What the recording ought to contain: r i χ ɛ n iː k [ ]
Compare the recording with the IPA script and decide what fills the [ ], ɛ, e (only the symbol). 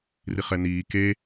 e